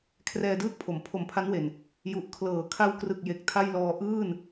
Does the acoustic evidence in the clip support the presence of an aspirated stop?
yes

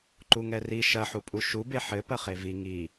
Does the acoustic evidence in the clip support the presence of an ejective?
yes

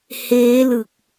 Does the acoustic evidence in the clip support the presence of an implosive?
no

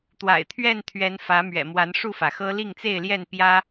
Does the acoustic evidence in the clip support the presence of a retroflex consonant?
yes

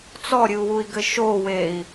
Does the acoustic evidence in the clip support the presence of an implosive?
no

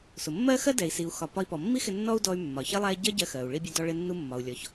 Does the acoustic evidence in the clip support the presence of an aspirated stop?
no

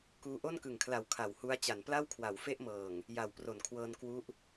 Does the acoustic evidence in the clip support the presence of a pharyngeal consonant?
no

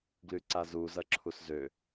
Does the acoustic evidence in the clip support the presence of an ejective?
no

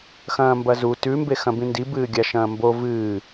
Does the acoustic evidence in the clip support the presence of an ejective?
no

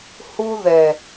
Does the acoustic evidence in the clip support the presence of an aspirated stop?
no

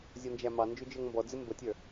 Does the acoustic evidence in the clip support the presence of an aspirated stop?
no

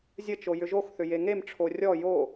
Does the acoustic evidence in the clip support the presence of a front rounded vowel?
yes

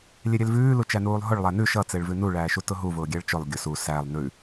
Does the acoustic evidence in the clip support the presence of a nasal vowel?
no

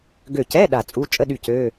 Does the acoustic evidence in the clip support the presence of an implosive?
yes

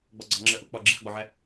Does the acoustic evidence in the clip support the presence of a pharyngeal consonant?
yes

